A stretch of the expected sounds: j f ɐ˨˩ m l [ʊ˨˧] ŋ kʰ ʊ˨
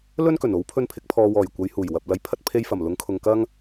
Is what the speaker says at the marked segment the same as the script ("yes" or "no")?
no